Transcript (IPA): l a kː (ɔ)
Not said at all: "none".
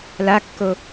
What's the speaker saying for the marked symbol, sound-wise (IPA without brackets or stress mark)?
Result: o